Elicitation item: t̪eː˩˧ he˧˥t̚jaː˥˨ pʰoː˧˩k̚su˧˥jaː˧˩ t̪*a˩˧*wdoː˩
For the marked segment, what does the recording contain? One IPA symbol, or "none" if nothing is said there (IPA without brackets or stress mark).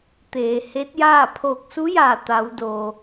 a˩˧